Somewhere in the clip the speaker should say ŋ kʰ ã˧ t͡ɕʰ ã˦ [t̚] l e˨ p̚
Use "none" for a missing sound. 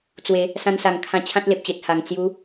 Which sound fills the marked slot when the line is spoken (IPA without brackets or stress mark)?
t̚